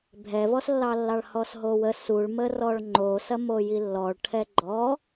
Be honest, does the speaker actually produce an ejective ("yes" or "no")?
no